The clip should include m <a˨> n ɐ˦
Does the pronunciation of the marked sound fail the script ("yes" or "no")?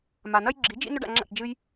no